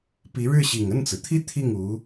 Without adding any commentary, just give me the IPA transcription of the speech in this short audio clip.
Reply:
pi˧˥ɻɻ̩˥˩ɕi˨˩ŋ ə˥˩nt͡sɹ̩˩t̪ʰi˥ t̪ʰi˥˩ŋu˧˥

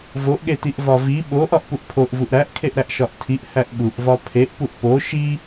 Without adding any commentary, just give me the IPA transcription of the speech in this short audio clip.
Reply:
voʔɠetiʔ vɒvi ɓoʔ ɒʔpuʔpʰoʔ vuʔɾæʔkʰeʔ ɾæʔʃɒʔtʰiʔ hæʔɓuʔ vɒpʰeʔpuʔ po ʃi

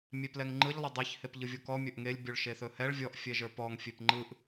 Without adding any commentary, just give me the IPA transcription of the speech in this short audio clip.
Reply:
mʲeplɛŋŋ͡ǃɯʎ lˠɵdˤiç hepʎɯvʲokɔ mʲɵʔŋelʲ bʲoɭʃeθɵhɛɭ vʲɔʔ fʲɛʒə˞pɔŋ fʲepŋ͡ǃɯʔ

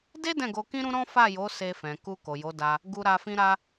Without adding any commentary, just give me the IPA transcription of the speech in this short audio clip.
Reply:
de˦ dɛ̃˦˨ɡo˧kĩ˦ɾũ˦ ɾɔ̃˦fa˦˨jo˨˦ se˧fɛ̃˨ku˧ ko˨jo˨˦da˧ | ɡu˧ɾa˧ fĩ˧ɾa˧

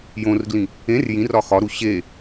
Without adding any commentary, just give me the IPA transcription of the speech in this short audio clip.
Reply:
jõrɡlĩ | ẽr jĩrɒ xɒɾu ɕe

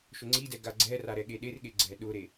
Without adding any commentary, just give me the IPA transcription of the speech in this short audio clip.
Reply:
ʃʊŋ͡ǀidɛ ɡaɡ͡ǀɛra ɾɛɠeɗerɠe ɡ͡ǀɛɗʊɾe

